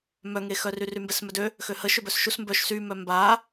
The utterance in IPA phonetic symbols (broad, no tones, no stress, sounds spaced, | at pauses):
m œ ŋ e x œ r y r y m b ɛ s m œ d ø | x ø h ə ʃ ø b œ s ʃ u s m b œ ʃ s y m œ m b a